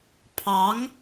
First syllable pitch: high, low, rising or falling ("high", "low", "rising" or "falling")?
rising